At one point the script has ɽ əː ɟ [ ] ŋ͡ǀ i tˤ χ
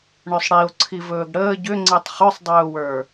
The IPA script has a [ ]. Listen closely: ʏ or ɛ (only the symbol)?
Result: ʏ